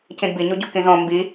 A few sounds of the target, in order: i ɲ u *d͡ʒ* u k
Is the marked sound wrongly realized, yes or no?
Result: yes